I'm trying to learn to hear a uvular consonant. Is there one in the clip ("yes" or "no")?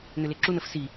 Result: no